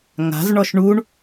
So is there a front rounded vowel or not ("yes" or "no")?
no